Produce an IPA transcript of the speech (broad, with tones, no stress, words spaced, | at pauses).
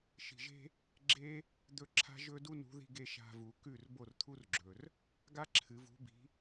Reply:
ʃi̤˧ʒe̤˥ | ɡ͡ǁe˥ | d̪ɵ˥ ǁʰa̤˥ʒɵ˥du˥nṳ˨˥ ði̤˧ɡe˧ ʃa̤˧vu˨˩˦kʉ˥˩r bo˥˩rt̪ʰu˥rɡ͡ǁɵ˩r | ɡa˥ǁʰɨ˨˩˦vṳ˨˥bi̤˨˥